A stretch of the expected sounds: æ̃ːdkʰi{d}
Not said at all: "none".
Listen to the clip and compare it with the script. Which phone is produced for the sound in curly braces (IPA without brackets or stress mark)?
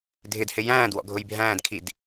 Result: d